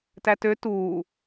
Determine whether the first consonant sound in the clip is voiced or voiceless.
voiceless